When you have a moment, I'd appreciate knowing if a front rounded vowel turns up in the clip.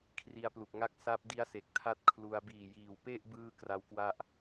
no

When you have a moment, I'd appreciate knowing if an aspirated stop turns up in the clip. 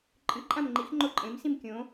no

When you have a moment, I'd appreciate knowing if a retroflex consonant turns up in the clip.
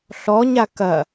no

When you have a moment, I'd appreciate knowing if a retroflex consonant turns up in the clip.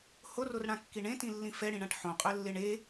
yes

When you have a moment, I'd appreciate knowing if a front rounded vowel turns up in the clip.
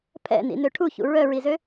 yes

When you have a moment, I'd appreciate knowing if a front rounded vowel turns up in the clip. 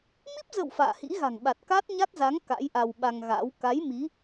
no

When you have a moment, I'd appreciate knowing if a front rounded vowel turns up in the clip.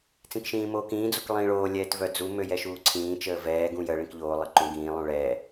yes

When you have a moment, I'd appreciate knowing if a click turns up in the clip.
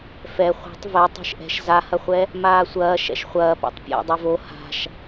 no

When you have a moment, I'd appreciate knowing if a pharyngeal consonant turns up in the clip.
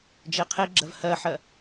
yes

